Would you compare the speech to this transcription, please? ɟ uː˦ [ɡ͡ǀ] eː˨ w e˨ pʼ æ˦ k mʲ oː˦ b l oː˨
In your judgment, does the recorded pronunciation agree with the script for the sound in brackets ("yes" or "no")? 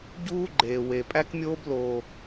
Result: no